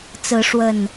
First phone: t͡s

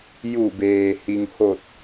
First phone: j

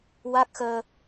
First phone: w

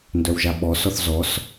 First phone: n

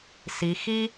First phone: s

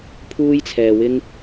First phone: pʰ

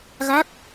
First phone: ɣ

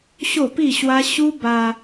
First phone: ɕ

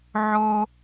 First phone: ʕ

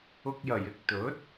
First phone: ʊ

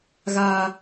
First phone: ɣ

